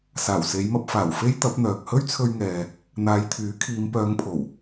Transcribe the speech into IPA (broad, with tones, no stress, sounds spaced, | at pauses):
s aː˨˩ w s e˨˧ j m ɐ˧ p̚ f aː˨˩ w f e˥ j t̪ ɐ˨˥ p̚ n̪ œː˨ k̚ h ɵ˥ ɥ t͡sʰ ɵ˧ ɥ ŋ ɛː˨ | n̪ aː˨˧ j t̪ʰ yː˨˥ kʰ iː˨˧ m p œː˨˧ ŋ pʰ o˨˩ w